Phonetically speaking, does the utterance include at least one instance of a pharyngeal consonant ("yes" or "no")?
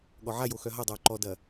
yes